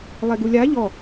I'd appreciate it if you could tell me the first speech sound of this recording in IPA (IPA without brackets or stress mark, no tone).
lˠ